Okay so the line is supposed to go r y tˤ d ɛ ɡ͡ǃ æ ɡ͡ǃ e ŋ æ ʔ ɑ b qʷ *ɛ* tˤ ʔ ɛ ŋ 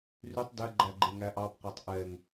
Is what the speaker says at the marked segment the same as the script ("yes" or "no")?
no